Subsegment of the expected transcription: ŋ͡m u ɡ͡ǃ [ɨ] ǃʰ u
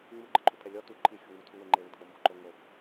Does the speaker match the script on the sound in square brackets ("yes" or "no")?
yes